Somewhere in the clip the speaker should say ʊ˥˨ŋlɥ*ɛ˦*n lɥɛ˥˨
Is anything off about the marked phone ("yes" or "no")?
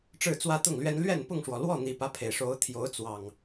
no